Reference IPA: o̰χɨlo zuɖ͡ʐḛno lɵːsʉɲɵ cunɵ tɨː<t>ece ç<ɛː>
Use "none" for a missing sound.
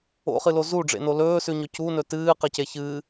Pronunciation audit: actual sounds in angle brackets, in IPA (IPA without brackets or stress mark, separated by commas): q, ɨː